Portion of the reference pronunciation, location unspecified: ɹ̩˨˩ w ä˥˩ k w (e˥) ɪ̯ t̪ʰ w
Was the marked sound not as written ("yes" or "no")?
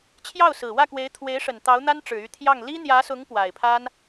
yes